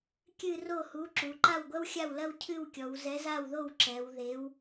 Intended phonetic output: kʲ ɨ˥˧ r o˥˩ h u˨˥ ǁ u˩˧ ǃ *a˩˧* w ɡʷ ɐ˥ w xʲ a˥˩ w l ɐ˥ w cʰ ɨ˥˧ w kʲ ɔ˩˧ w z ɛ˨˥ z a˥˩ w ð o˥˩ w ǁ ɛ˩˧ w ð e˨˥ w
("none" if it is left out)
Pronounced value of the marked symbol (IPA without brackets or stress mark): a˥˩